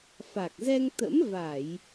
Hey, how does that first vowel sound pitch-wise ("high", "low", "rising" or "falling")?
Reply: low